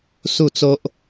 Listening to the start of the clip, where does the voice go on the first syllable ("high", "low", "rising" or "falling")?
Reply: falling